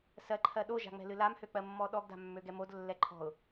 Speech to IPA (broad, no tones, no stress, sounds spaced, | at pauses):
s ɜ ǃʰ ɜ ɗ o ʒ a̤ ŋ͡m ɛ̤ l ɨ l a m h ø k͡p ɜ mː ɔ ɗ ɔ ɡ d a̤ mː ø ɡ ɛ m o d lː ɛ ǃʰ ɔ̤ ʊ̯